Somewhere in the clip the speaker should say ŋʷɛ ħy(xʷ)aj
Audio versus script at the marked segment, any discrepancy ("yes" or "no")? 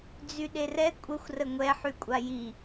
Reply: yes